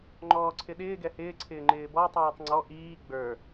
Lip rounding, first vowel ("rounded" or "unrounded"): rounded